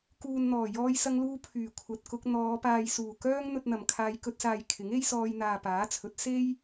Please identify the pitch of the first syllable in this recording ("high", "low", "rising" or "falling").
low